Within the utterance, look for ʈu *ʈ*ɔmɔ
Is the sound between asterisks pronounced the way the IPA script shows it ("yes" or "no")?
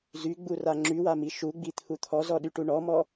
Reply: no